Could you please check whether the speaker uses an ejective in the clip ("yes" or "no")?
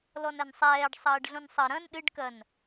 no